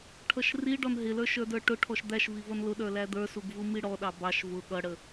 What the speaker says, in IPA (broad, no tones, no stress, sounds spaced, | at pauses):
ʈʰ ʌ ʃ r i ɖ ɔ n ɦ ɪ l ə˞ ʃ ə˞ d ə˞ ʈ ʊ ʈʰ ɔ ʃ d̪ æ ʃ v i v ʌ n l ʊ ɗ ə˞ l æ d̪ ə˞ s u ɡ v u m i ɽ ɔ ɗ ɑ b ɑ ʃ v ʊ ɠ ʌ ɽ ə